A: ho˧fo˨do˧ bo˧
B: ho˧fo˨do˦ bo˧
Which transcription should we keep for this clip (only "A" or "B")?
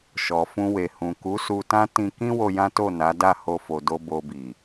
A